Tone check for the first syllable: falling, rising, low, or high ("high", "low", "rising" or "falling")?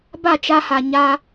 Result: falling